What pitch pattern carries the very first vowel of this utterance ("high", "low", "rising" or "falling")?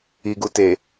low